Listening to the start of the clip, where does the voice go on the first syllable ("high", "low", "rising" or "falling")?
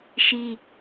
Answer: high